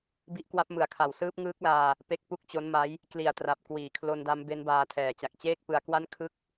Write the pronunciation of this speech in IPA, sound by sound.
bi˦˥ʔkwa˦˥p̚mɯ˨˩a̯kʰa˨˩w sɯː˦˥p̚ŋɯː˦˥k̚laː˧ | pe˦˥k̚pu˥˩k̚t͡ɕo˦˥nma˦˥j | kli˨˩a̯tra˨˩p̚ kwiː˩˦kʰlo˧nda˦˥m be˦˥nbaː˧tʰɛː˩˦ t͡ɕa˨˩k̚t͡ɕeː˥˩k̚pɯ˧a̯kwa˥˩n kʰɯ˥˩k̚

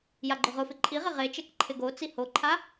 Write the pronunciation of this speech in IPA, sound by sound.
jaɡ͡ǃʊʁʊfɪ ǃʼiʁɪ ʁet͡ʃɛk ǃʰɪɡot͡si hoǃʰa

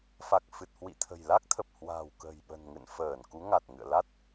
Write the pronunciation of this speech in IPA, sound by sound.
fa˨˩k̚fɨ˨˩t̚hwḭ˧˨t̪ʰə̤˨˩j la˦˥k̚t̪ʰə˨˩p̚hwa̤ː˨˩w kə̤˨˩jɓə̤˨˩n ŋɨ̰˧˨nfəː˧˩n ku˨˦ŋa˨˩t̚ŋɨ̰˧˨ə̯la˦˥t̚

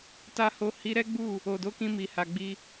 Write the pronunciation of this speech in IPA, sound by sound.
ta˦ ho˧hi˧ ɾɛ˦ɡ͡bu˦˨ | o˨do˨˦kĩ˧mi˨ ha˨ɡ͡bi˧

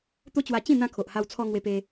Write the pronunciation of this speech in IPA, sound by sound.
t̪o˦t͡ɕwa˧t͡ɕĩ˥˧ n̪ã˧ kʰo˨ʔha˧w t͡sʰɔ˧ ŋwe˧pe˧

